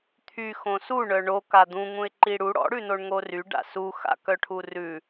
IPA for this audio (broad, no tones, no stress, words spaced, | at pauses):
t̪ʰy xõsu ɳœɳoka d̪ũŋũɪ̯ ǃiɽu ɽɔ̰ɽʉnoɳ ŋory ɖa̰suxa̰ kœʈʰurʉ